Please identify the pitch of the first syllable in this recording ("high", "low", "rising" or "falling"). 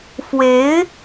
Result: rising